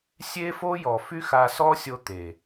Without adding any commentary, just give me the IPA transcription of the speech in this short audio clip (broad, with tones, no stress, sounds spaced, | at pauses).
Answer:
sʲ e˦ f o˦ j ɔ˨ f y˦ x a˧ s ɔ˦ sʲ o˧ t̪ e˨